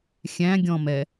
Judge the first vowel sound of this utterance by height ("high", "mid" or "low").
low